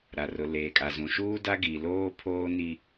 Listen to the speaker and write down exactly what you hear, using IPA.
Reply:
ɾa˨rʊ˨ leː˨kʼa˨zũ˨ʃuː˦ da˦ɡi˨loː˦ pʰoː˦ni˦

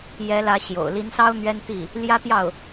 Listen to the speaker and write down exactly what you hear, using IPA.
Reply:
jɛ˧˥lä˧˥ ɕjo̰˨˩ʊ̯ li˧˥nsɑ˥ʊ̯ n̪ɥɛ˥nt̪i˥˩ | ljä˥t̪jɑ˥˩ʊ̯

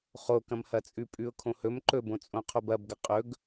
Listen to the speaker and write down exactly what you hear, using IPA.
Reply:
χokɐ̃mhɐt͡sʼʉ pʼʉʊ̯kʰõhɵm ǃɵbõt͡sʼõ qʰobɐbɡɐ qʼɵɡ

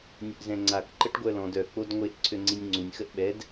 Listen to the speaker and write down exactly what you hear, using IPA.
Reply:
nʲəʔzɛ̃ŋ͡ǀak ǃəʈɡʷœlɔ̃d œ k͡podŋʷeʔ ǀʰøŋ͡ǀinʲŋ͡ǀunʲ xəʔɓɛd

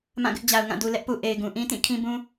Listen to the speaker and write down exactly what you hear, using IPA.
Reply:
mã˦˨ɡɪ˦ʔd͡ʑa˨ʊ̯ŋã˦˨ du˨lɛ˦ʔpu˨ ʔe˨ɪ̯ɡũ˨ ʔĩ˦tĩ˦˨ kʰĩ˦bũ˦

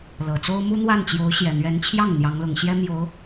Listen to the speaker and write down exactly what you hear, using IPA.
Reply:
lɤ˨˩t͡so˥ʊ̯ mu˥n̪wa˥˩nt͡ɕjo˧˥ʊ̯ ɕjɛ˨˩n̪ɥɛ˧˥n t͡ɕʰjɑ˥˩ŋ n̪jɑ˧˥ŋlʊ˨˩ŋɕjɛ˥ mjo˧˥ʊ̯

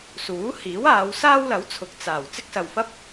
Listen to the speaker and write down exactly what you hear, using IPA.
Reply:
suː˨˥hiː˨˥waː˨˧w saː˥wlɐ˨˥wt͡sʰʊ˨k̚ t͡saː˨˩w t͡sɪ˥k̚sɐ˨wfɐ˥p̚

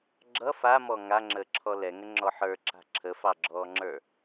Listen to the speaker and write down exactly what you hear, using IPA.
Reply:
ɡ͡ǁʌ famɔ ŋaŋ͡ǁəːǁʰɔ lɛŋəŋ͡ǁɔ ħə˞ǁa̤ ǁʰəfɑɡ͡ǁɔːŋ͡ǁə˞

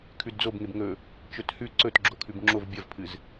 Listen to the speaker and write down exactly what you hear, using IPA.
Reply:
kʰʉdd͡zobŋeb ŋɵ | t͡ʃɵthʉ ǀɵtɡ͡ǁokʰʉb ŋ͡ǁov bʲɐvpʰɨz

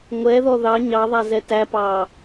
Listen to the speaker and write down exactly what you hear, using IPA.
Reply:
ŋʷɛðɔ ðɑ ɲɑðˤæ zɛtæpɑː

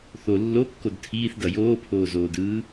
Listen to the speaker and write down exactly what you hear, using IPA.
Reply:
θo lːokːod tʰiːθdʌ joːpʰoːzoːdɯː

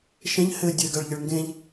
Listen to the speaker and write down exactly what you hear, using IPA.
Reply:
ʃɛ̃ʎ hɘ dʲɘɡaɭʎəɭ ŋɡẽʎ

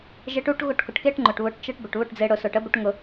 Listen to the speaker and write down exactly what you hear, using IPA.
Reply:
ʒe˧ʈu˨˦ʈ ɣʊ˦˨ʈkʊ˨ʈke˦ʈ ŋ͡ǃʊ˨ʈβʊ˨˦ʈ t͡ʃə˧ʈ bə˨ʈβʊ˦˨ʈd͡ze˧ ɽʊ˨sʊ˨ʈ ə˨˦bʊ˧ʈ ŋʊ˧

